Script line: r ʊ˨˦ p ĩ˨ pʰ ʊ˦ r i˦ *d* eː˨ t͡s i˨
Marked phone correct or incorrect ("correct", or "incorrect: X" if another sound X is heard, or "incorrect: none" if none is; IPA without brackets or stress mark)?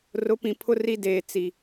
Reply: correct